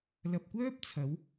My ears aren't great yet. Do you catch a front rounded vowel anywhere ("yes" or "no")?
yes